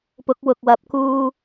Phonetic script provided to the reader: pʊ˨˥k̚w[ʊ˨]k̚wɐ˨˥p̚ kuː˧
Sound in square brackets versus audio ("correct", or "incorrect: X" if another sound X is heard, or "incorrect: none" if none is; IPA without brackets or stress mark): correct